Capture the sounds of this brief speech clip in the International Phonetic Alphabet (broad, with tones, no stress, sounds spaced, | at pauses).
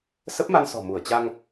s ə˦˥ p̚ m a˧ n s ɔ̤˨˩ m u˧˩ ə̯ t͡ɕ a˧ ŋ